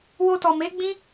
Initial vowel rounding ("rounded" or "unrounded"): rounded